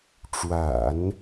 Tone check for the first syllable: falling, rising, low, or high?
low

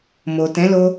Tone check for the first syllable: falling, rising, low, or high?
low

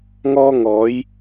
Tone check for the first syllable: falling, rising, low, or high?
high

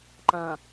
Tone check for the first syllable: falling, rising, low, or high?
low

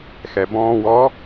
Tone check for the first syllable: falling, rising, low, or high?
low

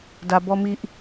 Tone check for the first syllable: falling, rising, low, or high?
low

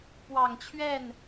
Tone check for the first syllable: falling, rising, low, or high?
low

